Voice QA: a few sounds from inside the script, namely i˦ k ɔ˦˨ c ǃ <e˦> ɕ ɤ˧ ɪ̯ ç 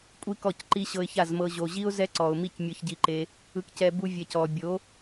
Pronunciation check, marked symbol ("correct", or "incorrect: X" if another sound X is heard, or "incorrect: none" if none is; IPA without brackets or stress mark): incorrect: i˦